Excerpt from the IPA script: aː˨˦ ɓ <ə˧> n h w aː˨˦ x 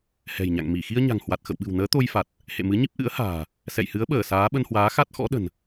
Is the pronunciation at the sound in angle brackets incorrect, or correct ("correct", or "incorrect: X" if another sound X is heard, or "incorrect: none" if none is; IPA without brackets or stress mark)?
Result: correct